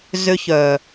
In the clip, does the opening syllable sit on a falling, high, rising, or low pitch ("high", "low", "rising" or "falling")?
high